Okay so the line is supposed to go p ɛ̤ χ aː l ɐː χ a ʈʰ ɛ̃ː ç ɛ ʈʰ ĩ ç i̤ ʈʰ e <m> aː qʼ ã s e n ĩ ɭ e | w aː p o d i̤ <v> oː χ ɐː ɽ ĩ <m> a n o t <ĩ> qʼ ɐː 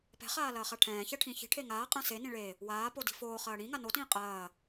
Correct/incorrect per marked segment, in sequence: incorrect, incorrect, incorrect, incorrect

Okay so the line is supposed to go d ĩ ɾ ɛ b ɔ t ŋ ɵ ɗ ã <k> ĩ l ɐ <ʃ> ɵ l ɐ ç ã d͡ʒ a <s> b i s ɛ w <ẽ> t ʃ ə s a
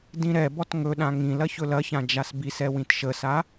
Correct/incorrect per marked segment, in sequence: incorrect, incorrect, correct, incorrect

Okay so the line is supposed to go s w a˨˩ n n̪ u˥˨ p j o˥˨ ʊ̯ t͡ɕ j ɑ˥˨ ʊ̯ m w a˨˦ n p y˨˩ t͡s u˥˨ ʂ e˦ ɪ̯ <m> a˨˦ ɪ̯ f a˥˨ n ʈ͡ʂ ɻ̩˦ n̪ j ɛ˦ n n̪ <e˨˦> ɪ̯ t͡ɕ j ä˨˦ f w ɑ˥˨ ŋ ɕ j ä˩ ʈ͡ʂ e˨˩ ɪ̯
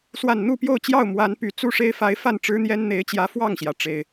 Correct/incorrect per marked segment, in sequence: incorrect, correct

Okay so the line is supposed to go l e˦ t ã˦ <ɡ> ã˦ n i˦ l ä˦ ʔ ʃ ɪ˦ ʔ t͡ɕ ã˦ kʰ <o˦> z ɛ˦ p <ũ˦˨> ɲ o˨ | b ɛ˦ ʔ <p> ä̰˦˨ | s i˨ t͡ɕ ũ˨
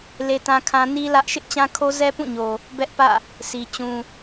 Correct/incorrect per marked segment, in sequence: incorrect, correct, correct, correct

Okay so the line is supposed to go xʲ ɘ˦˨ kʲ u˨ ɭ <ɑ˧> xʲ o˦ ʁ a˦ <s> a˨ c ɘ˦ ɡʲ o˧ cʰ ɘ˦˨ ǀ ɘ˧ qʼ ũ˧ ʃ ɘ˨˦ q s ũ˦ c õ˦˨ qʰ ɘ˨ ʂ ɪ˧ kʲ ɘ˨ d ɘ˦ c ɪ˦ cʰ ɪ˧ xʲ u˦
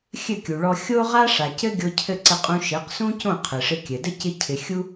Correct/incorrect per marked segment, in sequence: incorrect, incorrect

